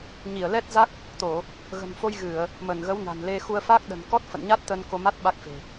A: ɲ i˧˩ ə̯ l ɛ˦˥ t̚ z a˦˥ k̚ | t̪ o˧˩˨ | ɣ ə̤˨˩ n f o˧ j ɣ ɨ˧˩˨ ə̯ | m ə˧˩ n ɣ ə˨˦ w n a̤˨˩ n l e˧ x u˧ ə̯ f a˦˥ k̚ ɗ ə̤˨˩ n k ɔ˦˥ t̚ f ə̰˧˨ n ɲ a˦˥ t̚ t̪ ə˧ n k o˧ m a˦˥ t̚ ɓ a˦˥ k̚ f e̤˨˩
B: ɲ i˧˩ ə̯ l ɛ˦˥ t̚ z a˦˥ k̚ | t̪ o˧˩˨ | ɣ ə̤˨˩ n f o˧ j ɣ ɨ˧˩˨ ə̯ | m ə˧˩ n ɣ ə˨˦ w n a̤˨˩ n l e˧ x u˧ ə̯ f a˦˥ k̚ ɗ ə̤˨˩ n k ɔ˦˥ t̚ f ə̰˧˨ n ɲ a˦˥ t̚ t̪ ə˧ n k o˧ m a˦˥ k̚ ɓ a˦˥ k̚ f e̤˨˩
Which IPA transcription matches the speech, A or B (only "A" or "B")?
A